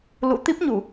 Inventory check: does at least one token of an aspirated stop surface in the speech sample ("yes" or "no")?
no